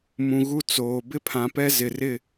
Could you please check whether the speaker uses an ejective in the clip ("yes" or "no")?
no